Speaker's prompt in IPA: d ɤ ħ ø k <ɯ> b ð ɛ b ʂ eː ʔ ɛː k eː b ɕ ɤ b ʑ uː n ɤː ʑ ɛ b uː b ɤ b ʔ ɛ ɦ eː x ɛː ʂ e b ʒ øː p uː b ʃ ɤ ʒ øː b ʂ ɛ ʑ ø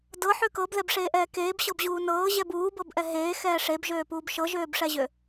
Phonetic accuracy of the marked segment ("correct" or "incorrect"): incorrect